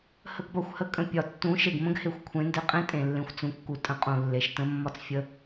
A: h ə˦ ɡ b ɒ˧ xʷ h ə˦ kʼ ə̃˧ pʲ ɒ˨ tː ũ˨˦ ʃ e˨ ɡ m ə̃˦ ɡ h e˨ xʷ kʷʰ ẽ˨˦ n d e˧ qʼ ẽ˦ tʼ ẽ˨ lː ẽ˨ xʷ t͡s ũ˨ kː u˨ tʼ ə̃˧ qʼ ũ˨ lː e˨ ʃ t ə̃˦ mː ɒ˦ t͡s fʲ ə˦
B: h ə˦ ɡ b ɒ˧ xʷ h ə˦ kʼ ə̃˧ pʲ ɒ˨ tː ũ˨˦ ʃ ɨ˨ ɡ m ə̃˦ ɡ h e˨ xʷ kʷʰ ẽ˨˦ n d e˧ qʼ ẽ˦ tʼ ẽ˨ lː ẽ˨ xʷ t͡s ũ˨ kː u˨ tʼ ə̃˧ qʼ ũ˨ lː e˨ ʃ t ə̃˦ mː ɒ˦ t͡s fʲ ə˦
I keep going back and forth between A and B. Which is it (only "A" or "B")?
A